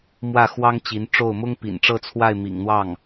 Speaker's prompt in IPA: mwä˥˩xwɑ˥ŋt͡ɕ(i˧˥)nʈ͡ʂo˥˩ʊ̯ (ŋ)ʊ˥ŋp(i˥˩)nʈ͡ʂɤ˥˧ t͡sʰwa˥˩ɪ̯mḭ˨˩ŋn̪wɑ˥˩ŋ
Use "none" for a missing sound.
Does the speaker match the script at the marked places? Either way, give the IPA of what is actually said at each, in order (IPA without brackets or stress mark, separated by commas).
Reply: i˧˥, m, ḭ˨˩